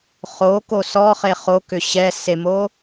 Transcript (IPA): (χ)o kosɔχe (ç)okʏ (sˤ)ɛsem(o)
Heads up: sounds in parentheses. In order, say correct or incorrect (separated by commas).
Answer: correct, incorrect, incorrect, correct